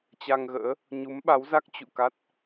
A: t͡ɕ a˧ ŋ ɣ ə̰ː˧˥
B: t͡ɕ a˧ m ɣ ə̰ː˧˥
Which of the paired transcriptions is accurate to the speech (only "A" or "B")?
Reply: A